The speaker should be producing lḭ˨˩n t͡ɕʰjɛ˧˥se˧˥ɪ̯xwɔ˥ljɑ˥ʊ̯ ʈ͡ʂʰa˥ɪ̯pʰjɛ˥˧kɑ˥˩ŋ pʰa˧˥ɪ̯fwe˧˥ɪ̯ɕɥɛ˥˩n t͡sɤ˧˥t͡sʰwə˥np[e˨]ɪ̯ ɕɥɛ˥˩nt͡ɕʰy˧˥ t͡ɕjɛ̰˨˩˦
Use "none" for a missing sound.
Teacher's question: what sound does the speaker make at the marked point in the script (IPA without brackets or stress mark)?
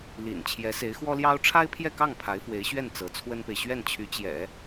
e˨